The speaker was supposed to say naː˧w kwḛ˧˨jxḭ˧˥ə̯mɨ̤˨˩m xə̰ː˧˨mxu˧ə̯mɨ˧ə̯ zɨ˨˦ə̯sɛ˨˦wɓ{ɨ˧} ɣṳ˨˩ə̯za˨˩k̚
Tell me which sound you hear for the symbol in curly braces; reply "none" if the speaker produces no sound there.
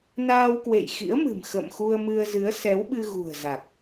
ɨ˧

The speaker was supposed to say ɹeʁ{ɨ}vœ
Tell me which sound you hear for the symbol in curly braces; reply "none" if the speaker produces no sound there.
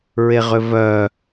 ʏ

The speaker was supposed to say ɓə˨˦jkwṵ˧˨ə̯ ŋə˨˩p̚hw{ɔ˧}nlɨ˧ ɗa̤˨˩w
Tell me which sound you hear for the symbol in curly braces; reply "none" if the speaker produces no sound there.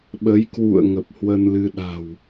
ə˧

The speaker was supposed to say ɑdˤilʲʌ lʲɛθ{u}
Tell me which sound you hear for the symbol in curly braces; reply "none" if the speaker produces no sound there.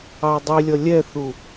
u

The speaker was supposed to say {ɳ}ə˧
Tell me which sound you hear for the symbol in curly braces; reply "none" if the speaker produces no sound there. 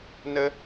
n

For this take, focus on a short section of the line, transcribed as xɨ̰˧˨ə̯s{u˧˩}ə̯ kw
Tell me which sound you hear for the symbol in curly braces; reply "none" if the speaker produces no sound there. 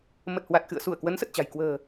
u˧˩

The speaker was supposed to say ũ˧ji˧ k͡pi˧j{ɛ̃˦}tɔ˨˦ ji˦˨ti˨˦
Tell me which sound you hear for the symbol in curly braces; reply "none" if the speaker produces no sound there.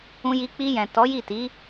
ɛ̃˨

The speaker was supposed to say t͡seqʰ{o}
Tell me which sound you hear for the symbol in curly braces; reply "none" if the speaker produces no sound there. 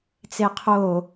o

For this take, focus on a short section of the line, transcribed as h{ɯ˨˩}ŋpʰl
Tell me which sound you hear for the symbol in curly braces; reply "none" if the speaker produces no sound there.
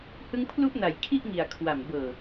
ɯ˧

